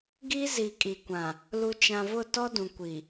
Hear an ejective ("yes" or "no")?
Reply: yes